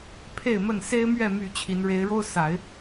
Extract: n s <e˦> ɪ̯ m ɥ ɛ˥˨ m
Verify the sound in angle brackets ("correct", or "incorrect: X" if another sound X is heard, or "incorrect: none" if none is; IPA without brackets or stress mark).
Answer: correct